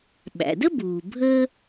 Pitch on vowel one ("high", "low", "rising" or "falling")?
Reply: low